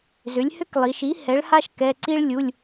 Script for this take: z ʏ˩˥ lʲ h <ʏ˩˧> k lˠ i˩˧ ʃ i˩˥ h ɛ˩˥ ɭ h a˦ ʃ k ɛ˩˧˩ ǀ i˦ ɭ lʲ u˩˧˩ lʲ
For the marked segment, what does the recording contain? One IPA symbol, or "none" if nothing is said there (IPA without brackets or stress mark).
ʏ˦